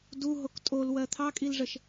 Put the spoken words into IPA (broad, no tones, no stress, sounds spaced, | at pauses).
d u ɦ o k tʼ o l w ɜ t̪ʰ ɑ kʼ i l ʐ ə ʃ